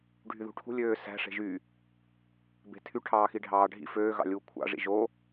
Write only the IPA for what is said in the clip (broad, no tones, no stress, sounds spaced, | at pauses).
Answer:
ɖʱ y ð ṳ ʈʰ ṳ lʲ øː s æ̤ ʂ e̤ ʒ y | b e̤ tʰ y ʈʰ ɑː x i ɖʱ ɑː ɖʱ ḭ f øː ɣ ɑ̰ lʲ uː kʷʰ ɑ̰ ʐ ḭ ʒ o